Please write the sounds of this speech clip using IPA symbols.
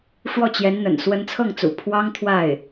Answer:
ʂwɔ˥˩t͡ɕjɛ˧˥nn̪ə̰˨˩n swə˧˥nt͡sʰɤ˥˩ŋt͡sṵ˨˩ pʰwɑ˥ŋ t̪ʰwa˥˩ɪ̯

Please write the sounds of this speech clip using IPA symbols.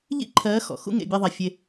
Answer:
ʎḭ˦ǃʰɜː˨˦ xɔ̰˨xṵ˦ ŋḛ˨ bʲe˧ðˤɛ˨ fʲe˧

